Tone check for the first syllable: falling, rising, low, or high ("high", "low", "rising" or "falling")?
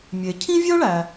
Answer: low